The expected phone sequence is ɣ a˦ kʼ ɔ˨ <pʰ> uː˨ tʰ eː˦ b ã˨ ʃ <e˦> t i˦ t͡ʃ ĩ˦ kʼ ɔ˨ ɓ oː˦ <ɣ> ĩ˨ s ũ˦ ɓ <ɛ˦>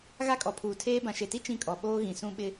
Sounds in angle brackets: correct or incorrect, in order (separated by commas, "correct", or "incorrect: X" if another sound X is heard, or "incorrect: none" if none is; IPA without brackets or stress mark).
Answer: correct, incorrect: e˨, correct, incorrect: ɪ˦